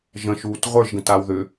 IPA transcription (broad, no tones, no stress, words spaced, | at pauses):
ʒə̃ʃuːt ʁʷə˞ʒɡə̃taw ðʏ